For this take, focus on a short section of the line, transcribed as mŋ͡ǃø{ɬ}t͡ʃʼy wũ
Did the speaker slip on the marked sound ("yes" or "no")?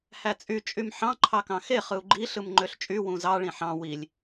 no